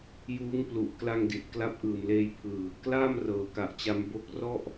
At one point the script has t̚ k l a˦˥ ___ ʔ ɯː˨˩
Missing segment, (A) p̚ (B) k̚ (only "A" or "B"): A